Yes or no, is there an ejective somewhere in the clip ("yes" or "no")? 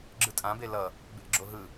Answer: yes